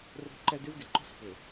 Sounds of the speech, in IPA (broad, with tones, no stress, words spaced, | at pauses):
ro̤˦ǃɛ˦d ɪ˦vdɪ˨ǃo̤˦s pʏ˨